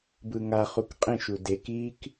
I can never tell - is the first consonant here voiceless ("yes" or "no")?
no